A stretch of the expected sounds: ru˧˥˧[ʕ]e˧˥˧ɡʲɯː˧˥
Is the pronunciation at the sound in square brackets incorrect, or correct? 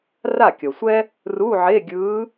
correct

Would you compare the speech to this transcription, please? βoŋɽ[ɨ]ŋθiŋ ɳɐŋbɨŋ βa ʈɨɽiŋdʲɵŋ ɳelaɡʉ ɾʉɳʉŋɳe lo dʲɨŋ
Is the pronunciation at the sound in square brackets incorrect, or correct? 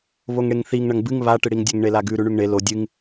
incorrect: e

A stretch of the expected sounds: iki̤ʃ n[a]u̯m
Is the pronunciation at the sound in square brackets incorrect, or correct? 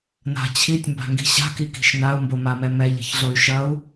correct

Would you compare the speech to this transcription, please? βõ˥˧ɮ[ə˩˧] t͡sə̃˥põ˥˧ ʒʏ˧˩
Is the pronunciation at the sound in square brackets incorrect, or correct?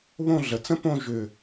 correct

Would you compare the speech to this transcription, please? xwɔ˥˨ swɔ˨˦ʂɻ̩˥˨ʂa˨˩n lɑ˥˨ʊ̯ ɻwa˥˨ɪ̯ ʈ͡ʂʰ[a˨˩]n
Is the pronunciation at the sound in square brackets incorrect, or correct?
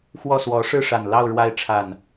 correct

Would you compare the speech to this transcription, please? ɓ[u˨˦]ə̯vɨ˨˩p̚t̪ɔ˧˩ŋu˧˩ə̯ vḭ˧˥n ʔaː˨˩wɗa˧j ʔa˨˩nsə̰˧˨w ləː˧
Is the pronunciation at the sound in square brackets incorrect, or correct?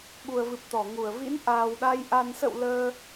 incorrect: u˨˩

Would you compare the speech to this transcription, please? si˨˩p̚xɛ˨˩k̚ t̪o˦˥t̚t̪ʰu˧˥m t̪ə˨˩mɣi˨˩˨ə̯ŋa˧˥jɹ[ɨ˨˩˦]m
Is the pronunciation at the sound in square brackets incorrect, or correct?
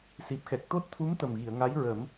incorrect: ə˨˩˦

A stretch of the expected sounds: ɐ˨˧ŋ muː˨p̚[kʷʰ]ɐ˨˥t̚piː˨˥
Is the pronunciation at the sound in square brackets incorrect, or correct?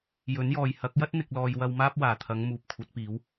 correct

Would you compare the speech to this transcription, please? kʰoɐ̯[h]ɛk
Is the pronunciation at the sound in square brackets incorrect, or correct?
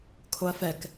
incorrect: f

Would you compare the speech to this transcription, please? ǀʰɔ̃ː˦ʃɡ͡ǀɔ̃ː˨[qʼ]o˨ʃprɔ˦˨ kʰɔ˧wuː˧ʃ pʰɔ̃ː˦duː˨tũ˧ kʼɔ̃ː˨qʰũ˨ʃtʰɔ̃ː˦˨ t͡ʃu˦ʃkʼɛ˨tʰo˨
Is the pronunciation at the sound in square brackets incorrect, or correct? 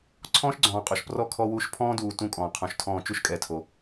correct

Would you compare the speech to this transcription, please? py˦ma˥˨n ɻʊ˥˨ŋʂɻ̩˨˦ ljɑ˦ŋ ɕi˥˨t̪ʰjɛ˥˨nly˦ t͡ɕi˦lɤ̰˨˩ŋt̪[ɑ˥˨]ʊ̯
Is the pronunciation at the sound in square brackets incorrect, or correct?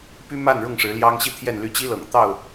correct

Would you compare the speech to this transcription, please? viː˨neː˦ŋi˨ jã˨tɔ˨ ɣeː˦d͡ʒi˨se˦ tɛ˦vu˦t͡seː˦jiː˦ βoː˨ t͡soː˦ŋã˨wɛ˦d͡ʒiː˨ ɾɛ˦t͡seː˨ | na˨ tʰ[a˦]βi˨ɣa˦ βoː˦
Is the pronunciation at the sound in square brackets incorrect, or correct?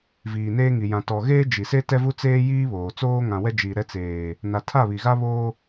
incorrect: a˦˨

